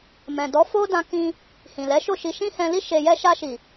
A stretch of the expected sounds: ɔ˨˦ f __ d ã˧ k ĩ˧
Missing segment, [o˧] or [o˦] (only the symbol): o˦